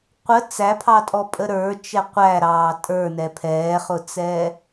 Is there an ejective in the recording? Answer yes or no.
yes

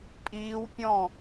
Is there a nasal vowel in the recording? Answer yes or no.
yes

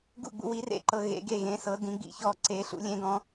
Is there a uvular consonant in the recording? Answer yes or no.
no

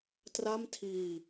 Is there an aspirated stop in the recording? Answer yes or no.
yes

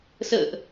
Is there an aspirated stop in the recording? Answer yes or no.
no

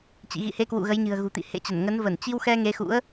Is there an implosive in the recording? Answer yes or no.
no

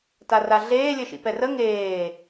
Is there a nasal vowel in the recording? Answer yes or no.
no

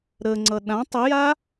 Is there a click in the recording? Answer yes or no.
yes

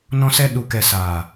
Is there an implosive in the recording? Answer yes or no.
yes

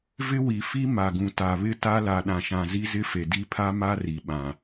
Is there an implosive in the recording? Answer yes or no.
yes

